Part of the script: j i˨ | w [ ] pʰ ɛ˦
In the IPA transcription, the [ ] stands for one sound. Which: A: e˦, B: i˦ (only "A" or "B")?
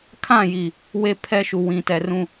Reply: A